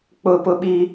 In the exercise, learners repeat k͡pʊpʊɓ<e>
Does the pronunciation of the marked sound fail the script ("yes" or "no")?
yes